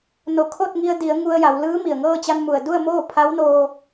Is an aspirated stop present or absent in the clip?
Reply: present